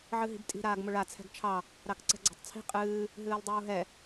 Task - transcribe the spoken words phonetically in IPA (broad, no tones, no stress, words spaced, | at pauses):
ʕɨɦi̤btʼi̤ ɾaːɡmʊɭa t͡sʰɛ̤ɡt͡ʃʰɑ | ɾɑkǀɛ̤ɡ͡ǀɔ̤tˤt͡sʰi̤ qʼɨː | ɦɨːlˠdˤuːɦɛ